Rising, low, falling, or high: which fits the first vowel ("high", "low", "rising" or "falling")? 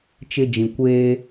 high